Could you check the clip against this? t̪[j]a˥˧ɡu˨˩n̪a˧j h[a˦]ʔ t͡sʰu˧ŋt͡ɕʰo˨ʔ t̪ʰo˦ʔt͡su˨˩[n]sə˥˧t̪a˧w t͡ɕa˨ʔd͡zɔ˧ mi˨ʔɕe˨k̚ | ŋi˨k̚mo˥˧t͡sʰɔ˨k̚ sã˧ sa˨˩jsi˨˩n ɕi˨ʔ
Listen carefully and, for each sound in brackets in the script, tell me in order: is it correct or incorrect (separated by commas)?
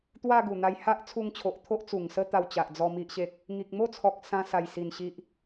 incorrect, correct, incorrect